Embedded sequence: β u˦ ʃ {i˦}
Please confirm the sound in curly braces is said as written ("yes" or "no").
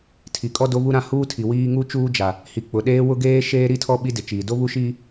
no